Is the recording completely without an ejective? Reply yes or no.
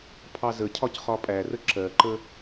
no